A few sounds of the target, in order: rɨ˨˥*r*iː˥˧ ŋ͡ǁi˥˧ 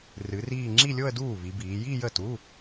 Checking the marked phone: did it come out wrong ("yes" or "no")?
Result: no